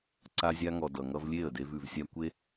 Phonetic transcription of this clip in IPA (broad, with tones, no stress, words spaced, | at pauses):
ǀa˧zʲa˧ŋɔ˨ dʌ˨ŋʌ˧vlʲe˦˨ə̯de˧v ʉ˨vsʲa˧ kʷe˧